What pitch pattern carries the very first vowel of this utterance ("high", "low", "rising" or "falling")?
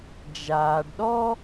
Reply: low